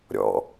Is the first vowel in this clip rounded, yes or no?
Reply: yes